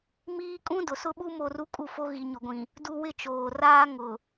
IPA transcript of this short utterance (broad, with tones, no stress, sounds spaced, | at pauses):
m iː˦ kʼ ũ˦ d ʊ˨ s ʊ˦ ɓ u˦ m o˦˨ r u˦ kʼ u˦˨ f o˦ ɣ i˨ ɲ ʊ˨ ɡʷ ĩ˨ | d u˦ w ɪ˦ t͡ʃ oː˨ r aː˦ ŋ ʊ˨